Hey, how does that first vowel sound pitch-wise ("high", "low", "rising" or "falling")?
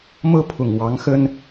falling